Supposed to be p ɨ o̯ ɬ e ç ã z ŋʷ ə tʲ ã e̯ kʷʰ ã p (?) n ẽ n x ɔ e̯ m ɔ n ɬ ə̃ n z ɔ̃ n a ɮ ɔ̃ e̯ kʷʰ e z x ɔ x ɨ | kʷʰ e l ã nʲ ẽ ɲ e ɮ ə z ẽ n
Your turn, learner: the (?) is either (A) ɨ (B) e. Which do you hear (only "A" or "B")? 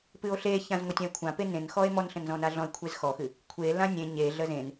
B